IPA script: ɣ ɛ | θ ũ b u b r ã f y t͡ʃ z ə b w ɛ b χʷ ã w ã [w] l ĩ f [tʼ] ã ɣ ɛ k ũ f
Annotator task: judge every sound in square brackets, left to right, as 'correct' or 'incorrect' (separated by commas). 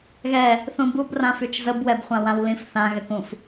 correct, incorrect